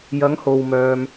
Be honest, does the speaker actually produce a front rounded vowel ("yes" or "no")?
yes